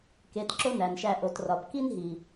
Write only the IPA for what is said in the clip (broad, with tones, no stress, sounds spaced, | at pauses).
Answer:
k e˨˦ t ǁ o˦ n æ˨ n ʃ æ˧ ʔ o˨ t r ɒ˨ b k i˦ n ɦ i˨